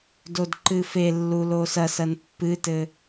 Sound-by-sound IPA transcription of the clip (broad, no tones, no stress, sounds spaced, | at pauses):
d o d ǃ ɨ f e lː u l o s ɐ s ɐ n pː ɨ t ɘ